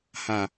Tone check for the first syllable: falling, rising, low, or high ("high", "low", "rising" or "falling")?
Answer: low